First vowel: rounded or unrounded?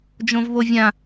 rounded